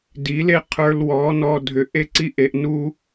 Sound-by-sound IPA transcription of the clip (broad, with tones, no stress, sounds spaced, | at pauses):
d i˨˦ l e˦ qʰ ə˞˧ l w ɔ˨˦ n ɔ˧ dʱ ʏ˨ ʔ e˦ ǀ i˦ ʔ e˧ ʔ n u˦